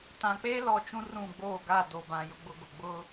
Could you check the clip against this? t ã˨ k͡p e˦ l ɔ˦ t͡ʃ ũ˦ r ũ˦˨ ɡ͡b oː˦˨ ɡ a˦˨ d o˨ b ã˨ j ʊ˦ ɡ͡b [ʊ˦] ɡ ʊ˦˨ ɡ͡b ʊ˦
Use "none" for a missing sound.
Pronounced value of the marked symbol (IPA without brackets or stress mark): ʊ˦